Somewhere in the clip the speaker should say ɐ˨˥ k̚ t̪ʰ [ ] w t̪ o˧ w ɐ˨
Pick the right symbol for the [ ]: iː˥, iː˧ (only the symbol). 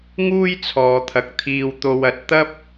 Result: iː˧